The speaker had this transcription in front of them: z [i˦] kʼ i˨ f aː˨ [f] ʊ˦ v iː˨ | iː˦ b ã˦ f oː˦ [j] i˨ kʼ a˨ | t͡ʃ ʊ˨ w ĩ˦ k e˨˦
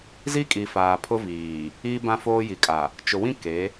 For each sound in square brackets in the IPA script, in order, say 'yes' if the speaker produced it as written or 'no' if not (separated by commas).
yes, no, yes